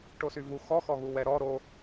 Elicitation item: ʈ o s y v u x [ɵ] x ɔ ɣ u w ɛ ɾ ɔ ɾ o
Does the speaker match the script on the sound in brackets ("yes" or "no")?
no